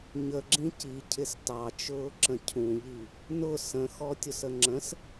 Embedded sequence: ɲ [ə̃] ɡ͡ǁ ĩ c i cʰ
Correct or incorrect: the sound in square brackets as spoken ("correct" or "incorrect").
incorrect